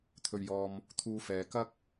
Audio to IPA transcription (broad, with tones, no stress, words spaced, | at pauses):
t̪ʰɵ˨ɥjɔː˨m | t̪ʰuː˧fɛː˨ kɐ˥k̚